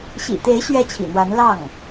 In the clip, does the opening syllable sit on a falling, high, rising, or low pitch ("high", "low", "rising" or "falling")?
low